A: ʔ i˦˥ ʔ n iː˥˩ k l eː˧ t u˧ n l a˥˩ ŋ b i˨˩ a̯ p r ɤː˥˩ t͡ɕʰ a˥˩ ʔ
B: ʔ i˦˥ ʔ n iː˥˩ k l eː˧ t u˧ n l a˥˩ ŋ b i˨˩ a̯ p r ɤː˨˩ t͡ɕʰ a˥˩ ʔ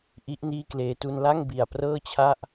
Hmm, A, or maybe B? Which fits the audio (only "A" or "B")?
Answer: A